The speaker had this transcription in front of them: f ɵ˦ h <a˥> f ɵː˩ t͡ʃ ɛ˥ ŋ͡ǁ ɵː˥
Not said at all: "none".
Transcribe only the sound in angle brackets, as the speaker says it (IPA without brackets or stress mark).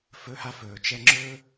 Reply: a˥